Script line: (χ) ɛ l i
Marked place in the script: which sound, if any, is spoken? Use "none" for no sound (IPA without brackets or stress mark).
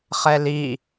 χ